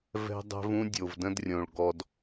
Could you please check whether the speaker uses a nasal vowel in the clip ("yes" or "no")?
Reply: yes